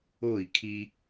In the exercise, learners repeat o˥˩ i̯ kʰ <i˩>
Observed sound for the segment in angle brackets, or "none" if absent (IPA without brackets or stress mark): i˧